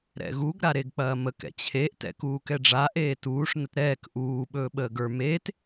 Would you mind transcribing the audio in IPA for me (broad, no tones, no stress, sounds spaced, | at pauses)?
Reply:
ɾ ɛ̰ ɣ u ɡ ɾ a ɾ e ɡ k͡p ɐː m ə k ɛ̰ t͡ɕʰ e ʔ t ɛ̰ k uː k ɛ ɖ͡ʐ a ʔ eː t uː ʂ n ə t ɾ ɛː k ʔ uː ɓ ɵː ɓ əː ɡ ə˞ m eː t